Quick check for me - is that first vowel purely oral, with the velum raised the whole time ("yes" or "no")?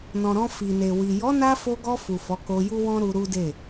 no